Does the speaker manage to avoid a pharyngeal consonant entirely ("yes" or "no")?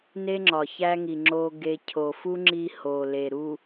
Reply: yes